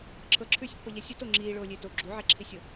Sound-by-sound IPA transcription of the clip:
ǁʰ ɤ ǁʰ ʉː sʲ pː ɤ ʎ ɛ sʲ u t o ŋ͡ǁ iː ɭ oː lʲ eː t o ɡ͡ǁ u ʕ ɛ ǁʰ i sʲ o

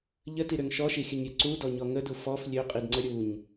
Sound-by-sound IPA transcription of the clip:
ʎ ə t i ɾ ø ŋ ʃ ɔ ʃ i xʲ ə ɲ ɾʲ ø ǀ u d ɔ ɲ ɔ ŋ ə d u f ɔ f lʲ ø qʼ i d ŋ͡ǀ ə ɾʲ u ɲ

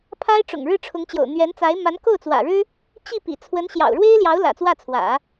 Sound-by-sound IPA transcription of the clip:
pʰ a˥ ɪ̯ ʈ͡ʂ ʊ̰˨˩ ŋ ɻ ɻ̩˥˩ ʈ͡ʂʰ ʊ˧˥ ŋ t͡ɕ j o̰˨˩ ʊ̯ n̪ ɥ ɛ˧˥ n t͡s a˧˥ ɪ̯ m a˧˥ n k o˥˩ ʊ̯ t͡s w ä̰˨˩ ɻ ɻ̩˥ | t͡ɕ i˥˩ p ḭ˨˩ t͡sʰ w ə˧˥ n ɕ j ɑ̰˨˩ ʊ̯ ɻ w e˥ ɪ̯ l j ɑ˧˥ ʊ̯ l ä̰˨˩ t͡s w ä˥˩ t͡sʰ w ä̰˨˩˦

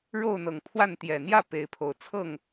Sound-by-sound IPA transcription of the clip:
ɻ o˥˨ ʊ̯ n̪ ɤ˨˩ ŋ pʰ w a˥˨ n t̪ j ɛ˨˩ n̪ j ä˥˨ p e˨˦ ɪ̯ pʰ o˨˦ ʊ̯ t͡sʰ ɤ˥˨ ŋ

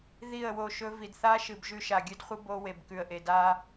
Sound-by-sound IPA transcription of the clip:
ð i˦˨ ə̯ w o˦˨ ʃ ɵ˦ v i˨ d θ a˦ ʃ ɨ˨ b ʒ ʉ˦ ʃ a˨ ɡʲ ɨ˦ d χʷ ɨ˦ b o˦ w e˨ b k ʉ˨ ə̯ ʔ e˨ d a˦

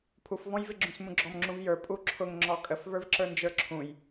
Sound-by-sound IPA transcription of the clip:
pʰ u f v ɔ̃ j v ɪ ɡ͡ǁ ũ s m ũ ɡ͡ǁ ɔ m ŋ͡ǁ ũ v j ə˞ pʼ u ǁʰ ʊ ŋ ŋ͡ǁ ɔ kʼ ə f v ə˞ v ǁ ə˞ n d͡ʒ ə˞ ǁʰ ũ j

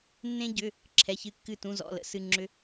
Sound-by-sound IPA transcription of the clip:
nː ẽ˧ ɟ ʏ˩˧˩ | ǁʰ ɛ˩˧˩ ç ɨ˧˩ kː ɨ˧˩ t ũ˩˧˩ z ɔ̰˩˧˩ l ə̰˨˥ s ɨ˩˧˩ ŋ͡ǁ ʏ˧

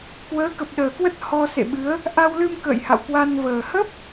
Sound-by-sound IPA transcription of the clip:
k w əː˨˦ k ə˨˩ p̚ ɗ əː˨˩ k w ə˦˥ t̚ h ɔ˧ s ḛ˧˨ ɓ ɨ˨˦ ə̯ | ʔ a˧ w l ɨ˧ m k ə̰ː˧˨ j h a̰˧˨ w k w a˧ n v əː˨˩ h ə˦˥ p̚

